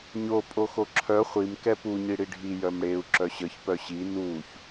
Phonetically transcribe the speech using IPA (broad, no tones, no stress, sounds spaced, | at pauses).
ɲ o pʼ o x o ǁʰ œ χʷ i m k ɛ p u ɲ i ɽ i ɖʱ i j œ m ɽ e u̯ ǁ œ ɕ ə ç p œ ɕ i n u ç